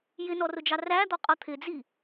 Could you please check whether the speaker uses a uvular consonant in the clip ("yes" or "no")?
yes